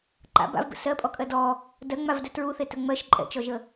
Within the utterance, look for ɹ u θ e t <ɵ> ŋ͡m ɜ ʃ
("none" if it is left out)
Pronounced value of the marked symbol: ɵ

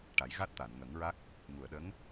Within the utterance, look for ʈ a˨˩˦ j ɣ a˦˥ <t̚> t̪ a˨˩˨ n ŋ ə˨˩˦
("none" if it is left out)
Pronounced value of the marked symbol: t̚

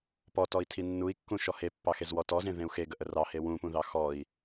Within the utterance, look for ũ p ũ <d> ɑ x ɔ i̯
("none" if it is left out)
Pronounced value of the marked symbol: ð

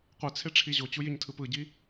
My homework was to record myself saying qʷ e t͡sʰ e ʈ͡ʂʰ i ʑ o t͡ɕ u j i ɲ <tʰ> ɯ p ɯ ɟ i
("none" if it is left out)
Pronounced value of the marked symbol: tʰ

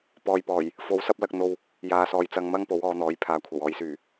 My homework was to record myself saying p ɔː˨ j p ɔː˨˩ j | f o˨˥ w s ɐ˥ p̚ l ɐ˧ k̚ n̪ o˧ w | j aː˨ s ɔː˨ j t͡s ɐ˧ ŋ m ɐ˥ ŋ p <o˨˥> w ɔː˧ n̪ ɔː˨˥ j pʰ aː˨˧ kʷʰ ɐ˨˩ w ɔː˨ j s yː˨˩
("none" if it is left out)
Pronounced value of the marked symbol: o˨˥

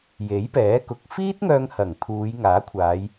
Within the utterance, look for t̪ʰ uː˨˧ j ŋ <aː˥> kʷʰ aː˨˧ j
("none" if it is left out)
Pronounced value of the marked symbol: aː˨˥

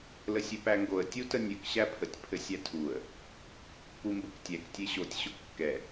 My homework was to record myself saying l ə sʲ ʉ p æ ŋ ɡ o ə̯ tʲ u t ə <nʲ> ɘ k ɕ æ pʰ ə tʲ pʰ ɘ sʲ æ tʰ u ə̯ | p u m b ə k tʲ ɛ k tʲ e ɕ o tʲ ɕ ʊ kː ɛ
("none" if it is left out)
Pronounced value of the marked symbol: nʲ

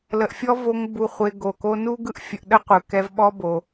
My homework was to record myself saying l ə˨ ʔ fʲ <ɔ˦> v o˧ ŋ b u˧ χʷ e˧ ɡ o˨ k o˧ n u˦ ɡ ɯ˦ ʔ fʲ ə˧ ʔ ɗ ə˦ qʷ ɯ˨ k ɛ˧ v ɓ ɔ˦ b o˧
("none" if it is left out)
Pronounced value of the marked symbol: ɔ˦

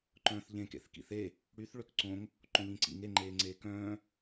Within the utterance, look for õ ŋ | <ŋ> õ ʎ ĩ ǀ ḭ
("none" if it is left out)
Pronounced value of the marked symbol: ǃ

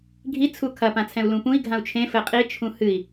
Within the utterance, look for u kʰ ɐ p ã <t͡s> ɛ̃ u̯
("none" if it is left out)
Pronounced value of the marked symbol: t͡sʰ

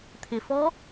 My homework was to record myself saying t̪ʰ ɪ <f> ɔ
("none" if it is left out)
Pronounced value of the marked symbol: f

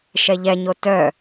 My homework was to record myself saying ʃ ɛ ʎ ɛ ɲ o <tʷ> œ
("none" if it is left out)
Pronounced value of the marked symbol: t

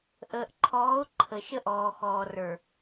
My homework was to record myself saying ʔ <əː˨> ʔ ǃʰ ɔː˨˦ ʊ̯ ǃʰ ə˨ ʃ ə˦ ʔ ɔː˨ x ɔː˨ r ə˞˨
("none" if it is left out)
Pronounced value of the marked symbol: əː˨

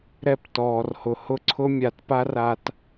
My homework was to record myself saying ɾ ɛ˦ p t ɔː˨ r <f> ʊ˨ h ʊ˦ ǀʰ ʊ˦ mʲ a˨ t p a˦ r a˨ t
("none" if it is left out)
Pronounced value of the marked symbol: h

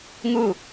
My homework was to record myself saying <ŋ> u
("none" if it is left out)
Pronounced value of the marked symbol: ŋ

